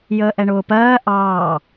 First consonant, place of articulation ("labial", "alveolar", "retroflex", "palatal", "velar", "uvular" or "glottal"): palatal